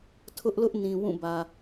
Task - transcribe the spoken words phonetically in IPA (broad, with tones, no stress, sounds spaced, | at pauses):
tʰ ʊ˦ ʔ l ʊ˦ ʔ n ĩ˨ w ũ˦˨ b ä˨